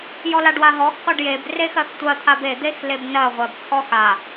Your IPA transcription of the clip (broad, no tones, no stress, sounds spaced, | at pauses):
j ɔ l a ɖ w a ɦ ɔ x qʷ a ɖ j e b r e x ɜ x tʷ ɜ t̪ʰ a b e d̪ e x l e b n ɜ ʁʷ ɜ b t̪ʰ ɔ x a